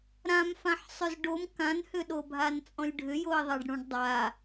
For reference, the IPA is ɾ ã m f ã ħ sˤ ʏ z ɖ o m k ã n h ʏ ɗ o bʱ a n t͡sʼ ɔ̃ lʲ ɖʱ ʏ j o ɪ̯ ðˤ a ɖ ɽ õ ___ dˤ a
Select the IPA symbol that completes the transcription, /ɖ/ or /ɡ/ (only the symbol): ɖ